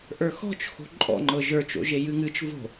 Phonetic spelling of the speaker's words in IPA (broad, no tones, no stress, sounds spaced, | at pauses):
ʔ ə˞ x ɔ̤ t͡ʃ x o̤ ǃʼ ɔ̰ ŋ͡ǃ ɤ ʒ ə˞ t͡ʃ o̰ ʒ e j ɨ ŋ ɨ t͡ʃ v o̤